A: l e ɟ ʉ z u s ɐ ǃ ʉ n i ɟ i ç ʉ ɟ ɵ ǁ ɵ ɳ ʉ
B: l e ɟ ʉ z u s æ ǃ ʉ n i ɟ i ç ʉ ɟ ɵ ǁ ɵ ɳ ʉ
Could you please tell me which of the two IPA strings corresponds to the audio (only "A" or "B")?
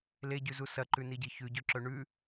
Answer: A